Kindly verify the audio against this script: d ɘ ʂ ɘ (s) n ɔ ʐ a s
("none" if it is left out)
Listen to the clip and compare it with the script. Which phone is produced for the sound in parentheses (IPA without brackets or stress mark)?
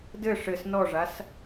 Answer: s